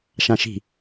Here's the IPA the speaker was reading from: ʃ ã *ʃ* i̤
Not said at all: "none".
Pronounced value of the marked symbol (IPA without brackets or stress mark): ʃ